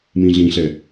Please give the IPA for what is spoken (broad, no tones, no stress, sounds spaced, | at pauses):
m ĩ ɮ ĩ ɬ ɛ